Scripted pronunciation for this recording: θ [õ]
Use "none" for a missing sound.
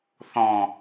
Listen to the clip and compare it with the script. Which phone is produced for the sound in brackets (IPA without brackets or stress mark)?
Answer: ɔ̃